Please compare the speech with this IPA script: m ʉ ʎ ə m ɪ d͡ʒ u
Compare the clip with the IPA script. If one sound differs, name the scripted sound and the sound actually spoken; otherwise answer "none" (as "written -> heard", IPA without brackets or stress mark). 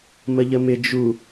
ʉ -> ə